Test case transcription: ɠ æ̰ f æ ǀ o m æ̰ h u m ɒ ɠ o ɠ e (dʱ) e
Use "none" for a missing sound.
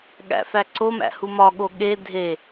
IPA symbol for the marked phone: dʱ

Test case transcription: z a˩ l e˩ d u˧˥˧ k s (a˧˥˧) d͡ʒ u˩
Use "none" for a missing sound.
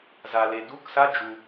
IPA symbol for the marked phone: a˧˥˧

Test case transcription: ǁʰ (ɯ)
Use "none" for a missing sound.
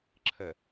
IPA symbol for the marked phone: ə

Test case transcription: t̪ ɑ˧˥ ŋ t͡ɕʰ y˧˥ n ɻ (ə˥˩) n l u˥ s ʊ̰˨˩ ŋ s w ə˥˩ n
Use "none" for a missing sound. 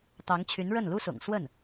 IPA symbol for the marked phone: ə˥˩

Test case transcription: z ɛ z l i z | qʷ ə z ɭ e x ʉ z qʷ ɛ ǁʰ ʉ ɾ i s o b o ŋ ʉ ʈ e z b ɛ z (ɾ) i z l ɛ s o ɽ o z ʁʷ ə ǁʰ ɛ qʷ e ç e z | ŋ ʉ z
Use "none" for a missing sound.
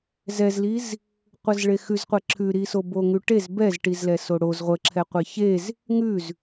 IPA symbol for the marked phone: ʈ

